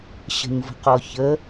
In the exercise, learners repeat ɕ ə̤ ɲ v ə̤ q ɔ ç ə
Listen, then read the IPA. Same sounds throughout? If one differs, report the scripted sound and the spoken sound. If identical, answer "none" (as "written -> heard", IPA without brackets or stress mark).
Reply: none